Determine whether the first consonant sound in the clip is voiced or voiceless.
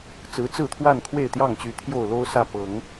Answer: voiceless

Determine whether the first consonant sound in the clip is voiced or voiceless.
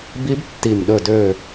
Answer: voiced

